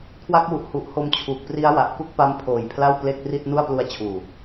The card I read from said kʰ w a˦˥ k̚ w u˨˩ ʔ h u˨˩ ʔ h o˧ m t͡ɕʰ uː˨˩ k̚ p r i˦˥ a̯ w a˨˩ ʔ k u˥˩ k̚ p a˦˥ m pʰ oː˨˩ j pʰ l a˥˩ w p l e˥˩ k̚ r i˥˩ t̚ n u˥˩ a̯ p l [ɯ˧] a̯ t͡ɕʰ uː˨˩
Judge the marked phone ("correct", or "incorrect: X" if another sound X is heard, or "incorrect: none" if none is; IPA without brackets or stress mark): incorrect: u˧